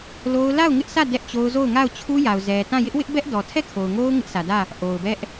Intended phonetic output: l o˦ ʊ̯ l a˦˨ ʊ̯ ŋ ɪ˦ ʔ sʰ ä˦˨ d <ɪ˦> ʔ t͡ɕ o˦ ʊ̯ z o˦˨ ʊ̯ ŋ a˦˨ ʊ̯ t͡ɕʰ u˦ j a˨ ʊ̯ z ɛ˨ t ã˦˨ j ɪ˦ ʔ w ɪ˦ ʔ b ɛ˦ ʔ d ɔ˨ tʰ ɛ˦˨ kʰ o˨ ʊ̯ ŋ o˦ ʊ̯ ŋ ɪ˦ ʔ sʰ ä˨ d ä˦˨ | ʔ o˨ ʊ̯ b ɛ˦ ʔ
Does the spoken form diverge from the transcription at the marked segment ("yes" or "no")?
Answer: yes